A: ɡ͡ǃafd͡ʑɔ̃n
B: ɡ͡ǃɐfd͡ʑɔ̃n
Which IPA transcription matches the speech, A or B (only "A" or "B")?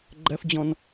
B